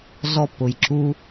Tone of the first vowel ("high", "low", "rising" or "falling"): high